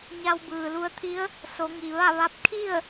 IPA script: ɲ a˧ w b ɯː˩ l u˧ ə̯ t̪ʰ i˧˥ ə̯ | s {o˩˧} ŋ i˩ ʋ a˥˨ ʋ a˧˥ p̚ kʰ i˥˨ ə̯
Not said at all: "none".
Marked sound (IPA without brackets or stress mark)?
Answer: o˩˧